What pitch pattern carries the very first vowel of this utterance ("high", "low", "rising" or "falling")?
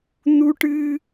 high